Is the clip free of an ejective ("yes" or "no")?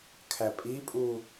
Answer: no